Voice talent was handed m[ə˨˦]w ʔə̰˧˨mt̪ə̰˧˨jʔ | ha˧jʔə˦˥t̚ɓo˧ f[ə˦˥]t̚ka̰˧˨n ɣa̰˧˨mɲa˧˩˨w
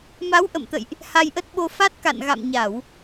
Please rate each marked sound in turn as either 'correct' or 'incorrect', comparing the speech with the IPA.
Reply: incorrect: a˨˦, incorrect: a˦˥

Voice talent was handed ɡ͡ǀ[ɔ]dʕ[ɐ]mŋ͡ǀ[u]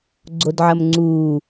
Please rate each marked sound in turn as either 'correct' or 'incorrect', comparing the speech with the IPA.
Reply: incorrect: o, correct, incorrect: uː

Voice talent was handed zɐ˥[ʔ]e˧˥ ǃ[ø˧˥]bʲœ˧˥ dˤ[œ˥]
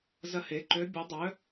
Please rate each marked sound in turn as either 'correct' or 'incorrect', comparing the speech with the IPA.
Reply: incorrect: h, correct, incorrect: œ˧˥

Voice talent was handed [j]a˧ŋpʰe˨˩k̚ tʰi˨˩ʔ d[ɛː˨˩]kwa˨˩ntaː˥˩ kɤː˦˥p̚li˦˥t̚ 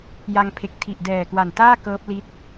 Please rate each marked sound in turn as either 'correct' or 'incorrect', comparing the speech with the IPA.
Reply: correct, correct

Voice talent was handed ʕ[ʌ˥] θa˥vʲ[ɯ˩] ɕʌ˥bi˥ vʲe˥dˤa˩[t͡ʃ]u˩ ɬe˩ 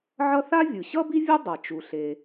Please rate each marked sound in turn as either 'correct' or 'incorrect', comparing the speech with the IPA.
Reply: correct, correct, correct

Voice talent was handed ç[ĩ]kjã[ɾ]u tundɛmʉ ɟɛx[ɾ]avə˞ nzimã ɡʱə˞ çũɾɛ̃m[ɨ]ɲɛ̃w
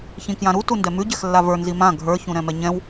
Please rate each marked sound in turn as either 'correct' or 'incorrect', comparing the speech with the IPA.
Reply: correct, correct, incorrect: lː, incorrect: ɛ

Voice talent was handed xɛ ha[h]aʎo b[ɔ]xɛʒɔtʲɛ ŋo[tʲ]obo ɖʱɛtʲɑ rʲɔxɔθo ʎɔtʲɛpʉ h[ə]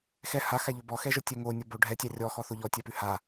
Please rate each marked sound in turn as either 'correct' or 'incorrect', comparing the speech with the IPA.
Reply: incorrect: x, correct, incorrect: nʲ, incorrect: a

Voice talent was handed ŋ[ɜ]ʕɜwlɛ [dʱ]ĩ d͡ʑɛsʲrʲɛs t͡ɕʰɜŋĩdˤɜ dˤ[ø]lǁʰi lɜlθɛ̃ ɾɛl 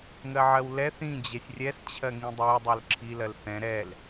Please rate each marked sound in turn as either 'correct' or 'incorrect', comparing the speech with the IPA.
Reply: correct, incorrect: θ, correct

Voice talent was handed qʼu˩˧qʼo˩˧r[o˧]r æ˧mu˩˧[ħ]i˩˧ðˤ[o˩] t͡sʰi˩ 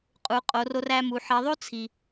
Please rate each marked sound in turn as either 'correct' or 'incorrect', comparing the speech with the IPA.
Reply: correct, correct, incorrect: o˥

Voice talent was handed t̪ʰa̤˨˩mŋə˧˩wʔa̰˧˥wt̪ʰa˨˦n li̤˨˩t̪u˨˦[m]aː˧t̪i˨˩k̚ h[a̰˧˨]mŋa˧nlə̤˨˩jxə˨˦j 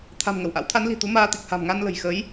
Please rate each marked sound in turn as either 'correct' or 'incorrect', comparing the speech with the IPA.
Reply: correct, incorrect: a̤˨˩

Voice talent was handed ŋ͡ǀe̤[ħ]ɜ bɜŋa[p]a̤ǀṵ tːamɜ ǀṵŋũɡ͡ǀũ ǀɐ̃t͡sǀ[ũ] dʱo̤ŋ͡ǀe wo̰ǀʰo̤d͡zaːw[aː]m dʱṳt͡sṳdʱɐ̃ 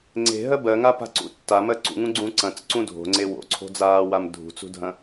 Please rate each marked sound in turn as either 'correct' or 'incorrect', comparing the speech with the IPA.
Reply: incorrect: ɦ, correct, correct, incorrect: a

